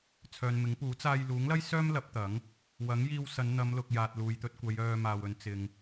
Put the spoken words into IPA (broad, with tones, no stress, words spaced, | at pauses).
t͡sʰœː˨nmɪ˨˥ŋpuː˨˥ t͡saː˧j luː˨˥ŋlɐ˥jsœː˥m lɐ˨˥p̚t̪ɐ˨˥ŋ | wɐ˨˥ŋ jiː˧wsɐ˨˧n n̪ɐ˨˧mlʊ˨k̚ jaː˨t̚luː˨jt̪ɵ˧t̚kʷɐ˨˧j œː˧ maː˨wɵ˨˧n t͡sɪ˨ŋ